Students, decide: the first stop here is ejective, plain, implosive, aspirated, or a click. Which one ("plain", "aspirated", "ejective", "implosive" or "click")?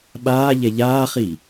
implosive